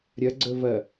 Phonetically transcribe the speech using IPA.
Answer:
ɾʲɐɡ͡ǀɵvɐ

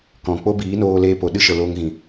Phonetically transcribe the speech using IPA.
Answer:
kɔ̃˨ k͡po˦ biː˨˦noː˧ leː˧po˨ ɗɨ˦ʃə˨ loː˧ŋɣĩ˨

